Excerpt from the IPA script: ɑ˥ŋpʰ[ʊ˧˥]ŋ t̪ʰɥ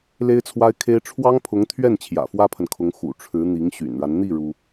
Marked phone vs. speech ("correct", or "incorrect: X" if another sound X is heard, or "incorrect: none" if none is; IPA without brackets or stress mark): correct